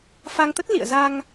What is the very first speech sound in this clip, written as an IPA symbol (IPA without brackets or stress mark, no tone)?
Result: f